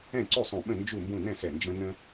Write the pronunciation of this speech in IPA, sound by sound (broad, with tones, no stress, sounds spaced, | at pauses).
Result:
ɛ̃˥˨ ǀ u˥˨ sˤ ũ˧˩ ɓ ə̃˥˨ n d͡ʒ u˥˨ m b ũ˥˨ n ɛ̃˥˨ s ɛ˧˩ n d͡ʒ ə̃˦ n ə̃˦